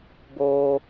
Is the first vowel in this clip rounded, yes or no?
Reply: yes